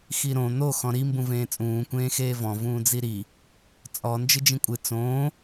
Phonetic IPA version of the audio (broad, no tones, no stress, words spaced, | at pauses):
xiɾõ n̪o xɔ̃ɾi mbũvẽːt͡sʼũː kʷẽːxeːvɔ̃ vũːd͡ziɾi | t͡sʼɔ nd͡ʒɨd͡ʒĩkʷʼɨ t͡sõː